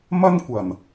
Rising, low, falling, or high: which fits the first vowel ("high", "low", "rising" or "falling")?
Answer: high